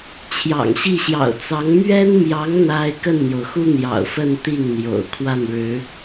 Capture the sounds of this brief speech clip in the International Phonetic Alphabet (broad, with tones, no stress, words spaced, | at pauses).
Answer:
t͡ɕʰjɑ̰˨˩ŋɕi˥˩ ɕjɑ̰˨˩ʊ̯t͡sɑ˧˥ŋ mɥɛ˥nmjɑ˧˥ŋ n̪a˥ɪ̯ kə˥˩nn̪jo˩ʊ̯xu˥ n̪jɑ̰˨˩ʊ̯fə˥˧n t̪i˥˩ŋn̪jo̰˨˩ʊ̯ kʰwa˥˩nɻɻ̩˧˥